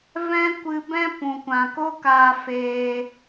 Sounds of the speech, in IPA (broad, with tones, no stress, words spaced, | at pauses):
vɛ̃˦kʷɨ˧ bɛ̃˦ pũ˨kʷã˨ko˦kaː˧ feː˧